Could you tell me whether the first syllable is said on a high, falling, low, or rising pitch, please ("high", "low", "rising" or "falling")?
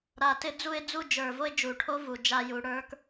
low